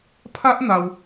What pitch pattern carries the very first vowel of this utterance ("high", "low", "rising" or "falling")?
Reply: high